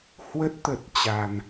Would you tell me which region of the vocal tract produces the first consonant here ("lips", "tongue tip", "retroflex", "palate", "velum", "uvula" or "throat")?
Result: throat